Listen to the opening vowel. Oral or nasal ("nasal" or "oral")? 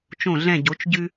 nasal